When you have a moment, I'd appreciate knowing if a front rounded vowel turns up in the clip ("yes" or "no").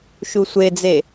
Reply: no